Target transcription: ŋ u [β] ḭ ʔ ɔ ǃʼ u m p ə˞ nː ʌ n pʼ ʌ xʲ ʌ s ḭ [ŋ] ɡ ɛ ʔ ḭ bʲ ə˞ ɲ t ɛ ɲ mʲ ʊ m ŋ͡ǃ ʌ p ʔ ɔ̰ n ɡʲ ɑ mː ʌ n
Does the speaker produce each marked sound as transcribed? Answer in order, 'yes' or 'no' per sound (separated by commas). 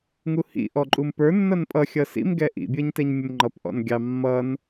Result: no, no